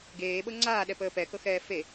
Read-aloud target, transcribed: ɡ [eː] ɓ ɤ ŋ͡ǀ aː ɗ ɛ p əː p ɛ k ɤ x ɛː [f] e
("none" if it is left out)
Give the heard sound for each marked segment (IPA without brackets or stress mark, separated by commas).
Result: eː, f